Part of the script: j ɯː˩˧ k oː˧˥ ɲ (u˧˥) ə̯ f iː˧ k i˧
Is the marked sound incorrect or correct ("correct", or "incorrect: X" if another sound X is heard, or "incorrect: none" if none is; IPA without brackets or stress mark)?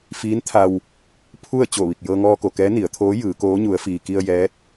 correct